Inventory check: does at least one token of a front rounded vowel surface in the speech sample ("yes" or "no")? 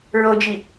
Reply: no